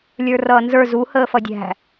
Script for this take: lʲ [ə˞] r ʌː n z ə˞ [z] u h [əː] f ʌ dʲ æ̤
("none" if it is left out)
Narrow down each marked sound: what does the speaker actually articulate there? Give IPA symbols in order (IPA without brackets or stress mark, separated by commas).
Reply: ə˞, z, əː